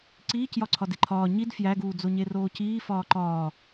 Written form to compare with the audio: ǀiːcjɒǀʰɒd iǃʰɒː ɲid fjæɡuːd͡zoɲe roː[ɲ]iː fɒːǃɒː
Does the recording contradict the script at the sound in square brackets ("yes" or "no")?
yes